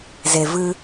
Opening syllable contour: low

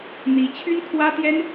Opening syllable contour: rising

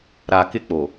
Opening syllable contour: low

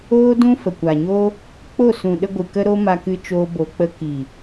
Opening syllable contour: high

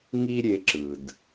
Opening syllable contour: high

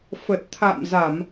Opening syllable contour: low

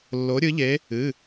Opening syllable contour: rising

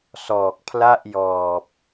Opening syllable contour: low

